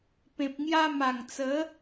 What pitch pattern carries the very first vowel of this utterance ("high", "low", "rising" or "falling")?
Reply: low